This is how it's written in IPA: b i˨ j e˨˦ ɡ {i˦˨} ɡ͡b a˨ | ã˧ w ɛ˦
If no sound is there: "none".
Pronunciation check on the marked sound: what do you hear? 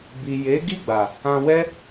i˦˨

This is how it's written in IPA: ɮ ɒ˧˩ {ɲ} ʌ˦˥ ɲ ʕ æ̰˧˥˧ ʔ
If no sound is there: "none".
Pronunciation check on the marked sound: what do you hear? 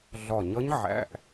ɲ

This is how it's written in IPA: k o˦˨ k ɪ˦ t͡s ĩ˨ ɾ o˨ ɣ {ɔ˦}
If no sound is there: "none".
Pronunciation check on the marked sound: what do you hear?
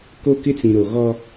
ɔ˦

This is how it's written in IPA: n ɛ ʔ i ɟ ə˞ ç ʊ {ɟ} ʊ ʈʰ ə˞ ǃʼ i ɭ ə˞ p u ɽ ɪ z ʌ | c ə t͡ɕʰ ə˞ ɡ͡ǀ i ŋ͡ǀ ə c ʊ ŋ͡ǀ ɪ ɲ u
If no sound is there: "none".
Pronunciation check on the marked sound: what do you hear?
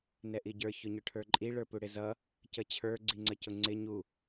ɲ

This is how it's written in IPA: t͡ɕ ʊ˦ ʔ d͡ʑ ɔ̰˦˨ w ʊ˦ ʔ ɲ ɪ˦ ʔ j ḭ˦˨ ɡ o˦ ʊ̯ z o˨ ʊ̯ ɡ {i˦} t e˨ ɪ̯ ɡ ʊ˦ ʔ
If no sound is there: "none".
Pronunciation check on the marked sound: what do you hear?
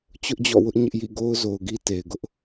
i˦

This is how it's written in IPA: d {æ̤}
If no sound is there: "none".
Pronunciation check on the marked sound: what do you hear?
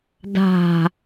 a̤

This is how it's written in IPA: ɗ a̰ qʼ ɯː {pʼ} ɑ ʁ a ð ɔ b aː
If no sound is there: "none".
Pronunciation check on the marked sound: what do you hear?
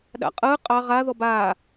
qʼ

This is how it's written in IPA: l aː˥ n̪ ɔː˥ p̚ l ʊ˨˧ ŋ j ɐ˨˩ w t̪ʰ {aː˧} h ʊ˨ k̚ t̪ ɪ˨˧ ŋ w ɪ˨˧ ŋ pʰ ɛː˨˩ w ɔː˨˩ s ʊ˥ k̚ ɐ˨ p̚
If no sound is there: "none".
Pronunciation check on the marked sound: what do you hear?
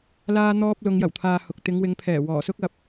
aː˨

